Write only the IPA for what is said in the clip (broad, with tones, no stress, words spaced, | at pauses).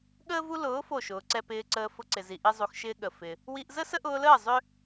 ɠəː˦vu˦ lʊː˨˦ fo˦˨ʃʊː˨ǀɛ˦ pɪː˧ǀəː˧ fʊ˧ǀɪ˨zi˨ ʔi˦zˤu˧xʃɪː˦ ɠə˨ fɪ˧ | wi˦ʔ zə˦sə˦ʔʊː˧ləː˦˨ zˤʏ˦